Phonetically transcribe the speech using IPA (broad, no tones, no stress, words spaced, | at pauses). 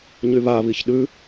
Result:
ɲyβaβiç ɗʉ